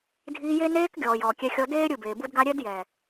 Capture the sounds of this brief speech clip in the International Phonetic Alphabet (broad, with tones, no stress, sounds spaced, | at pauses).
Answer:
dʱ iː˧ j e˦ n eː˧ k ɡʲ ɔː˨ j ɔː˨ kʲ ɛ˧ xʲ ɔ˧ d eː˦ ɾʲ ɯ˦˨ b eː˨ b u˦ d ɡ a˦ ɾʲ ɛ˦ d j ɛ˨